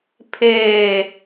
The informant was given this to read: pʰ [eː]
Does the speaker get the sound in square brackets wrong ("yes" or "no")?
no